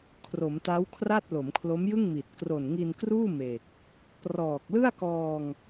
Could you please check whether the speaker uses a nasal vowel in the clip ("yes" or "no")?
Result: no